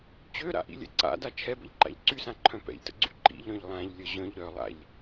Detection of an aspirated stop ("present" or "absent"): present